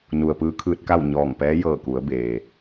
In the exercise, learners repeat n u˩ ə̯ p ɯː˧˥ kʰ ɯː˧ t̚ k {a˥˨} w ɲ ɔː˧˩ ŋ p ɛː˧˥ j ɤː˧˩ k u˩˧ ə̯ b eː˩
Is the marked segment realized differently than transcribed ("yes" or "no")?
no